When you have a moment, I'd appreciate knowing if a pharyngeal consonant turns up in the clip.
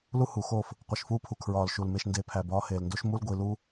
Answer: no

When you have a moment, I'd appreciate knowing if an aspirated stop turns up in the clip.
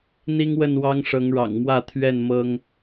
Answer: yes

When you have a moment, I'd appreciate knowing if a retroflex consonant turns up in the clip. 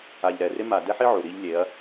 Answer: no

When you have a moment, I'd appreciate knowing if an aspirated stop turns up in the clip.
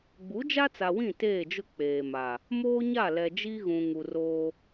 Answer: no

